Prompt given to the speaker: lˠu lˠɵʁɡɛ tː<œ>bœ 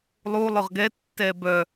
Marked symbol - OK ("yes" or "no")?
no